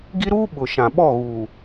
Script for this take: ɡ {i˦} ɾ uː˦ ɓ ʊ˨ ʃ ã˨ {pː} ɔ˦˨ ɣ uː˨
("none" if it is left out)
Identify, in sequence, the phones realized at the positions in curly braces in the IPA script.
i˦, ɓ

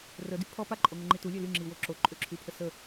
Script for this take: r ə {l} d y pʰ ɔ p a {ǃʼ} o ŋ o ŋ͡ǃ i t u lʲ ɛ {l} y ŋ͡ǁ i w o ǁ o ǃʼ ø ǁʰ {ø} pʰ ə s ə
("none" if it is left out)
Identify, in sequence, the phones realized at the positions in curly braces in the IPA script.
none, ǃʼ, l, y

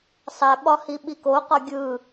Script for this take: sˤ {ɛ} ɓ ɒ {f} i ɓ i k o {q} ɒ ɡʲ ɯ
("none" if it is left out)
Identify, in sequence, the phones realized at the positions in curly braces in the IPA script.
ɛ, h, q

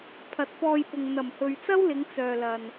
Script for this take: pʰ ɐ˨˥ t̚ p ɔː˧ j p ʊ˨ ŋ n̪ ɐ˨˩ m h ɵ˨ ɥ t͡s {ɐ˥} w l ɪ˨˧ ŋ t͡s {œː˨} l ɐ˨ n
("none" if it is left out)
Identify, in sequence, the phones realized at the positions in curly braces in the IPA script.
ɐ˥, œː˨

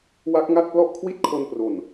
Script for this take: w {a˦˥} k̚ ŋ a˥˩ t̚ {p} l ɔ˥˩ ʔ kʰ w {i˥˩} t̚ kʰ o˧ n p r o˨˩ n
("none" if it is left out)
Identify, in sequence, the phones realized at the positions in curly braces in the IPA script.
a˦˥, p, i˥˩

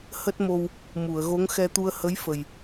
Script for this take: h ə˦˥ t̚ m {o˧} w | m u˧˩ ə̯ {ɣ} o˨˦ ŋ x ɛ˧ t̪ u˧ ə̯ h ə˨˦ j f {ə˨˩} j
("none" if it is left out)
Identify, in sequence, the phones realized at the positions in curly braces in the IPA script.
o˧, ɣ, ə˨˩

